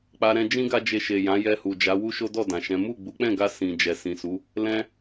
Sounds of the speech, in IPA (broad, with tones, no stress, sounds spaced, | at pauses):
k͡p a˧ ɾ ɛ̃˧ d͡ʒ ĩ˦ ɡ a˦ d͡ʒ e˧ ʃ e˨ j ã˨˦ j ɛ˧ h u˨ d͡ʒ a˨˦ w u˦ ʃ o˦ d ɔ˦˨ d ã˨ ʃ ɛ̃˨˦ m u˦˨ ɡ͡b u˨˦ k͡p ɛ̃˦˨ ɡ a˧ s ĩ˨ d͡ʒ ɛ˨ s ĩ˨ s u˨˦ | l ɛ̃˦